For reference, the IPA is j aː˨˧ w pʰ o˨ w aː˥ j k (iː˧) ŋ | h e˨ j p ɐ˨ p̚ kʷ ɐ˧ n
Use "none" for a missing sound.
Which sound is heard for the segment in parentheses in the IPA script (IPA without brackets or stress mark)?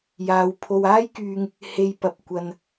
yː˧